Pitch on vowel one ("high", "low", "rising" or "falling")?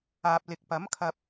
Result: low